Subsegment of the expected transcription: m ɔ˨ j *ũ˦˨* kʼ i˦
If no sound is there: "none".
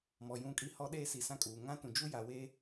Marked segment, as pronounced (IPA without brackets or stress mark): ũ˦˨